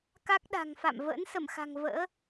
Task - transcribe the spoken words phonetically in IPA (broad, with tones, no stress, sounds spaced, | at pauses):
k a˦˥ k̚ ɗ a̤˨˩ ŋ f a̰˧˨ m v ə̰ː˧˥ n s ə˧˩ m x a̤˨˩ ŋ v ə̰ː˧˥